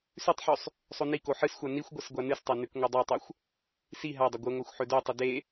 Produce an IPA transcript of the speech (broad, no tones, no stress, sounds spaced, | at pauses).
s ʉ tˤ ħ ʉ sˤ | sˤ o n i k o ħ ɨ s xʷ a n i xʷ ɡʷ ɐ s ɡʷ a n ɨ s tˤ a n ʉ k ŋʷ ɐ dˤ a tˤ o xʷ | s i ɦ a dˤ ɐ ɡʷ ɨ ŋʷ a xʷ ħ ɵ d o tˤ ɵ d e